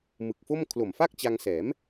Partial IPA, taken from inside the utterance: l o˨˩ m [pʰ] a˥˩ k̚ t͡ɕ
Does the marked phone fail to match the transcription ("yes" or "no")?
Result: yes